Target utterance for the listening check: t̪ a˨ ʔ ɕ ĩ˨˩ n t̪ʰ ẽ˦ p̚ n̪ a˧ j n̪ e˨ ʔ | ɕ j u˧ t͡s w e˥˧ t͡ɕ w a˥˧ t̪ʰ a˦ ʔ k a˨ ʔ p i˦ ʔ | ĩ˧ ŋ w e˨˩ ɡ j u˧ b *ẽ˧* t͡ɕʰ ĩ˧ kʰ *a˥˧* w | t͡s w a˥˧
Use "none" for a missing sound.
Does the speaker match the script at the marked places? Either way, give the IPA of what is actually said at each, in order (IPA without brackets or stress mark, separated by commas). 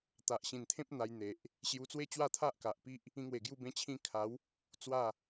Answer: ẽ˧, a˨˦